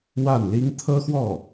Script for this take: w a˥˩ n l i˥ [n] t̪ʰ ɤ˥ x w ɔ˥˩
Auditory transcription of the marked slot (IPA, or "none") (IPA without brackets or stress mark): ŋ